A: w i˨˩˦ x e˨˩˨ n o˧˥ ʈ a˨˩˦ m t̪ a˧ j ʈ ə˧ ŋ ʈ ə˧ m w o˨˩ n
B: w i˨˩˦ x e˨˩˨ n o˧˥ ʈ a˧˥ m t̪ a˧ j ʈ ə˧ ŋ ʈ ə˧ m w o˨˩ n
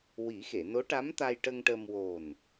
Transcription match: B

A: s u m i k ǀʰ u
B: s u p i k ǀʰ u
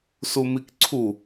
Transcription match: A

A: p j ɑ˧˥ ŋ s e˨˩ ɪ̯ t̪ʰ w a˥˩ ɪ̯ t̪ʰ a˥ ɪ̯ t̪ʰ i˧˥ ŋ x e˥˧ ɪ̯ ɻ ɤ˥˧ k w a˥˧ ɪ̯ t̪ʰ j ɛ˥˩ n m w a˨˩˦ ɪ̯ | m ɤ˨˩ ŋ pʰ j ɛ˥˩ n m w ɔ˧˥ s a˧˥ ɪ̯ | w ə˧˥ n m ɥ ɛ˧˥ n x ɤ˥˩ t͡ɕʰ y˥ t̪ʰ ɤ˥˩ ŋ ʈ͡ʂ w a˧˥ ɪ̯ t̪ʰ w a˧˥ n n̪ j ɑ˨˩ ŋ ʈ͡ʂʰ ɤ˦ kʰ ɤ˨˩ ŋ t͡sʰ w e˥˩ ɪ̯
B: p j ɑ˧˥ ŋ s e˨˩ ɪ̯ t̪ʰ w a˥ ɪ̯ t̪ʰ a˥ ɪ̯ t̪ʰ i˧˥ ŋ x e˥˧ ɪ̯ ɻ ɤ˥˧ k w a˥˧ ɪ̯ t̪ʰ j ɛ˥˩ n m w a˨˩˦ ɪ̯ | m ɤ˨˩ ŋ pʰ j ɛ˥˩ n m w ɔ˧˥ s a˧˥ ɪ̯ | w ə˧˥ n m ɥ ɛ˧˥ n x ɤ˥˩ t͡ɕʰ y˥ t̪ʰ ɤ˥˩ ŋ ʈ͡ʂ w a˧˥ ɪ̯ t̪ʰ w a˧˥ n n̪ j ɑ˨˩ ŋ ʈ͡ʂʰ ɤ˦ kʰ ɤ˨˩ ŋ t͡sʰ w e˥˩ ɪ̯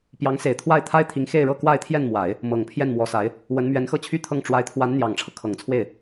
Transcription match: A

